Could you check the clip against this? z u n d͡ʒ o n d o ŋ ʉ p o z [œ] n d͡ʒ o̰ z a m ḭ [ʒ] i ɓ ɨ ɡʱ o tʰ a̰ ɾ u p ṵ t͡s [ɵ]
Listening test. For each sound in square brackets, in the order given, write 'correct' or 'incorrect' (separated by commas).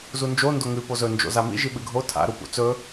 incorrect, correct, correct